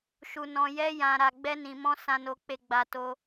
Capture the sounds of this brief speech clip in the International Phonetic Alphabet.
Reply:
ʃu˧nɔ̃˧jɛ˦ jã˧ɾa˧ ɡ͡bɛ˦nĩ˧mɔ̃˦ sã˧no˧k͡pe˧ɡ͡ba˧ to˦

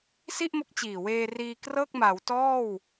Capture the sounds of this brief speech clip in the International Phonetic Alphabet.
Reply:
si˥˩ʔmo˦˥k̚t͡ɕiː˨˩weː˧ riː˧krɤː˥˩k̚ma˩˦w tɔː˥˩w

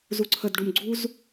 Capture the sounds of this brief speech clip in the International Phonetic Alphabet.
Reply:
zuǀʰədɖum ɡ͡ǀuz

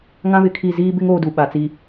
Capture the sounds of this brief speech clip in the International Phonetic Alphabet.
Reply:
ŋã˦βɪ˨˦kʰi˦˨ ziː˦bɪ˦ŋ oː˦du˨ ɓa˨t͡si˨

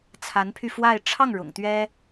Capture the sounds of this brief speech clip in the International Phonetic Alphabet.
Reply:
t͡sʰa˧˥npʰy˧ fwa˥˧ɪ̯ ʈ͡ʂʰɑ˥˩ŋ ɻʊ̰˨˩ŋt̪ɥɛ˥

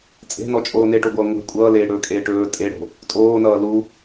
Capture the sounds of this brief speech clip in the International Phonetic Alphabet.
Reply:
t͡sʼe̤nɔt͡ʃʼoː neʈoɡʷʌː ŋʷe̤ kʷʼʌːleːɽɵːkʼeː ʈɵː tʼeɽo̤ | tʼoːnʌː lu

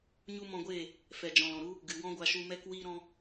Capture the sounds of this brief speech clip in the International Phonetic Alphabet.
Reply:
ɲu˦ mɔ̃˧ɡʷeː˦˨ | fɛ˨d͡ʒɔ̃˨l ɔ̃˨ɾu˦ | ɡɨ˨wɔ̃˦ɡʷa˧ʃu˧ mɛ˦k wiː˧ɾɔ̃˧

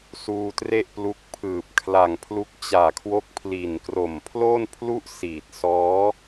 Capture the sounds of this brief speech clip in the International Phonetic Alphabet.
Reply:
suː˧tre˥˩ʔplu˦˥k̚ pʰɯː˨˩p̚kʰla˨˩ŋpʰlu˦˥k̚ t͡ɕaː˨˩kʰwo˦˥k̚pʰli˨˩nkro˨˩m pʰlo˥˩npʰlu˥˩ʔsiː˨˩t̚sɔː˦˥

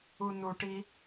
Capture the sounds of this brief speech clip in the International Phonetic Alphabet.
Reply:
unuʈi

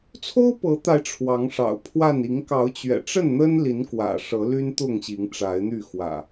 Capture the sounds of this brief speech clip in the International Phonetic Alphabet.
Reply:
t͡sʰo˦ʊ̯pɤ˨˦t̪a˨˦ɪ̯ ʈ͡ʂʰwɑ˨˦ŋʂɑ̰˨˩ʊ̯pʰwa˥˨n i˨˦ŋkɑ˨˦ʊ̯t͡ɕɥɛ̰˨˩ʈ͡ʂə˥˨n n̪ə˦nli˨˦n kwä̰˨˩ʂɤ˨˦ly˦n t̪ʊ˥˨ŋɕi˨˦ŋʈ͡ʂa˨˦ɪ̯n̪y˥˨ xwä̰˨˩

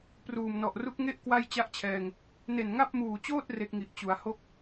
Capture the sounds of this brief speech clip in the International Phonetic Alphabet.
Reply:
pruː˨˩mnɔ˨˩ʔru˦˥k̚ ŋe˥˩ʔ kwa˥˩jt͡ɕa˥˩ʔt͡ɕʰɛː˧ŋ | ne˨˩nŋa˥˩p̚muː˨˩t͡ɕoː˥˩t̚ re˦˥k̚ŋi˨˩ʔ t͡ɕu˩˦a̯ho˥˩k̚

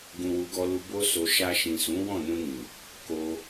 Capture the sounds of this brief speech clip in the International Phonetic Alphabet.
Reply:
ɡũ˨wu˨˦ɡɔ˧lu˧ bo˧so˨ ʃa˧ʃĩ˨sũ˨˦ wɔ̃˦˨nũ˧nĩ˨ | ko˧

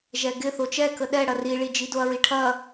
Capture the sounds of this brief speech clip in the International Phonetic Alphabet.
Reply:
ʒɛɡɪθo t͡ʃɛkə ɗɛ ɽɐriɭi d͡ʒidoɐ̯ɹiʈʰɐ

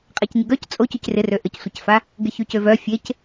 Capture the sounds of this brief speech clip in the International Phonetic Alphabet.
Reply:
qʼacɲɪɡœc t͡sʼo cycrɪrø ʔəcsʷɪcfa | ɡɪçycøvœ fʲec

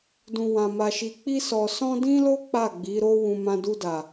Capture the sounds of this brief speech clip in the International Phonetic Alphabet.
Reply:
dũ˧wã˧ma˧ʃi˧ k͡pi˦sɔ˧sɔ̃˦ dĩ˦lo˦ k͡pa˦˨ɡ͡bi˨˦ ɾo˧ wũ˧mã˧ du˧da˨

